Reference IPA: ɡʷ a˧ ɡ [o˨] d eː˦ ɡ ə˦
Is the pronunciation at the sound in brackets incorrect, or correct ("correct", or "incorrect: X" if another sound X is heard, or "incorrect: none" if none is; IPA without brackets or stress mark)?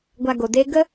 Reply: correct